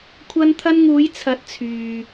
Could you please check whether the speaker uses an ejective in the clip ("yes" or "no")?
no